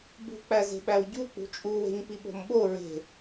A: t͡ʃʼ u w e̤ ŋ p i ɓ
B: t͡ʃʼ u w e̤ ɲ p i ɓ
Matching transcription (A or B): B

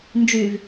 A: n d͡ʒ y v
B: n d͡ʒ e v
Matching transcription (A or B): A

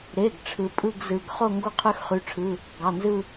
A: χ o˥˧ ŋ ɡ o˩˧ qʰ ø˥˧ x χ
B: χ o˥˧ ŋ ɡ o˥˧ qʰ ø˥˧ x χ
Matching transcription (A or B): B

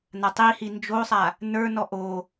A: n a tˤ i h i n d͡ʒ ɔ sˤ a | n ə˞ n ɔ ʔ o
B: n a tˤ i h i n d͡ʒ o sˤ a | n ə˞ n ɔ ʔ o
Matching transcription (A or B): B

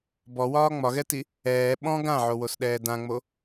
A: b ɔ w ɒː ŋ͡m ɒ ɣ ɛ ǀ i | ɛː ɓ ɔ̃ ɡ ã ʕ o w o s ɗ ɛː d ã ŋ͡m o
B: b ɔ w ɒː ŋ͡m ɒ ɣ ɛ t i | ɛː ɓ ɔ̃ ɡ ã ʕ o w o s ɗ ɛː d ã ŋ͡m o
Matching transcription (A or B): B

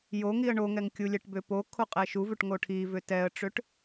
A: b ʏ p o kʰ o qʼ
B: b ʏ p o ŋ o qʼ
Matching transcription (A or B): A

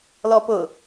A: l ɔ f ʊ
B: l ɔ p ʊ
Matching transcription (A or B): B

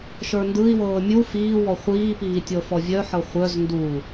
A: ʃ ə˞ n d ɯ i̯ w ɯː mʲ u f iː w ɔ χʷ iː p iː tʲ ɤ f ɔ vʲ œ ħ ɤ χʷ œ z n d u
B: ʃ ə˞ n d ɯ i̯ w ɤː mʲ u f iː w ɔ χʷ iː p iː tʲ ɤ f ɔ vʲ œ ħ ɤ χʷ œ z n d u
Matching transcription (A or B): B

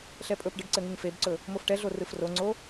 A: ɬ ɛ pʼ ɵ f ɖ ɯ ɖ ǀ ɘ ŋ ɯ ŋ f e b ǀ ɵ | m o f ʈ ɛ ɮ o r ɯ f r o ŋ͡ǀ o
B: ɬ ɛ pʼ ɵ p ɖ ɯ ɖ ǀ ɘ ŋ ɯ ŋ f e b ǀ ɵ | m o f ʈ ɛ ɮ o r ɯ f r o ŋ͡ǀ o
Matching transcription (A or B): B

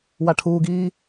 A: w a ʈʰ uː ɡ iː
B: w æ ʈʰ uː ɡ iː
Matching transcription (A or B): A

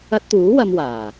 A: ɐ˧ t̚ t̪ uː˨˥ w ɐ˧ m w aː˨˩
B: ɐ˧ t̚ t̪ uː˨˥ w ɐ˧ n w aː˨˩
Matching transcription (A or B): A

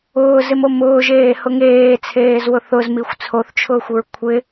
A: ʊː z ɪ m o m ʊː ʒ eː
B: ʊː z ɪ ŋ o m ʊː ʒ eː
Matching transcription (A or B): A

